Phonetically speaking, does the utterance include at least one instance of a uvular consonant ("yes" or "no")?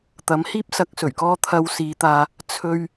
no